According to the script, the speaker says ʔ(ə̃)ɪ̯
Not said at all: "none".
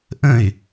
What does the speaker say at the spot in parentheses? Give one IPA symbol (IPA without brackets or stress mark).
ə̃